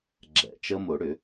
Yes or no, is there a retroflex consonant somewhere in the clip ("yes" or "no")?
yes